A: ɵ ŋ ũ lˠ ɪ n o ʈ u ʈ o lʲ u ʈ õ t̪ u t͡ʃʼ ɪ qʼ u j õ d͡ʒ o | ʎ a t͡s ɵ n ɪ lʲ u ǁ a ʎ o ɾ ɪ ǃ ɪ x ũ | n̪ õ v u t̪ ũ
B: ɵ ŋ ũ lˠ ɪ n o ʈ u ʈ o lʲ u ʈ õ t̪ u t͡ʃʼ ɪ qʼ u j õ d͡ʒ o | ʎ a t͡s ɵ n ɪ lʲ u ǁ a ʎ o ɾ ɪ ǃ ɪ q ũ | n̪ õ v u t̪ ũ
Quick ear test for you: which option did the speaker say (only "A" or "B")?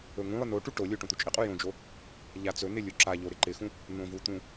A